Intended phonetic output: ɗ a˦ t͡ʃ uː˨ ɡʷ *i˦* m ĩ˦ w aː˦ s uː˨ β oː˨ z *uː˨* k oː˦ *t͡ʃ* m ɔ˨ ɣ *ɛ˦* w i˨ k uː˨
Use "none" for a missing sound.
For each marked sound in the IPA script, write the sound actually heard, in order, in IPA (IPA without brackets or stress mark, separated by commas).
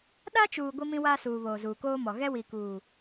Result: i˦, uː˨, none, ɛ˦